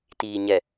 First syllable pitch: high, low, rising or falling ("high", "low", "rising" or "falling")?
low